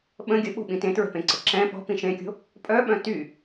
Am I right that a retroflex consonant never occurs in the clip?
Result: yes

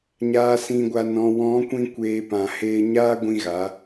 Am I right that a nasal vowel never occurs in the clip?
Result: no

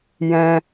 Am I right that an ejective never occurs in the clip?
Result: yes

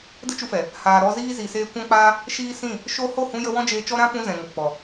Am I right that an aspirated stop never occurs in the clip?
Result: yes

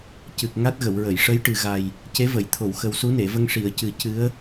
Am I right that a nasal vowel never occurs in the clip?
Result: yes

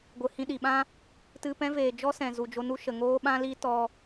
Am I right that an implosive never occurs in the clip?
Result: no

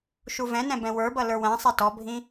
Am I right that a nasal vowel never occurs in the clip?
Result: no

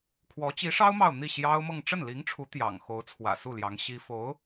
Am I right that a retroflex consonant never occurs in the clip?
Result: no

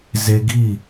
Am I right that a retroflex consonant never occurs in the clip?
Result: yes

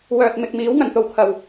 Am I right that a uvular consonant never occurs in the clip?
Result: yes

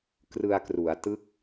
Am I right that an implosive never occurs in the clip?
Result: yes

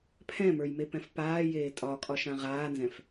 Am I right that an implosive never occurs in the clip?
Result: yes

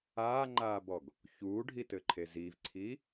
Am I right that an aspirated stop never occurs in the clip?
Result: no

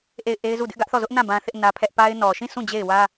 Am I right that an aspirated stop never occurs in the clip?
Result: no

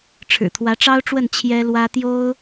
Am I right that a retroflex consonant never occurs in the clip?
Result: no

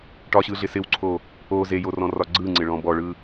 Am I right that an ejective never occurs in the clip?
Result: yes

